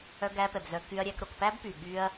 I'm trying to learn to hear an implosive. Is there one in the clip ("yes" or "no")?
yes